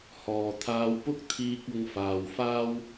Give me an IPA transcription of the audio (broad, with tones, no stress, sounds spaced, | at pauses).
h ɔː˨ t̪ʰ aː˧ w p ʊ˥ k̚ t̪ʰ iː˧ k̚ ʊ˨ ŋ f aː˨ w f aː˥ w